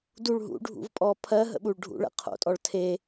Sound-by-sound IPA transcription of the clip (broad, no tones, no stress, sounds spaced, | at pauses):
d u ɭ ɦ ṵ ɖʱ ṵ v pʼ ɔ pʰ ɜ ɦ ə̰ ɓ u ɭ ɖʱ ṵ ɭ ə̰ qʰ o̰ tʼ ɔ ɭ tʰ e